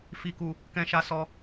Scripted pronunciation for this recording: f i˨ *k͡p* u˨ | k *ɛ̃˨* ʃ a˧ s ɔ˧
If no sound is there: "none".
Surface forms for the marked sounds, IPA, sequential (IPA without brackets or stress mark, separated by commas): k, ɛ̃˧